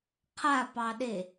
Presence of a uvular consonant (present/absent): present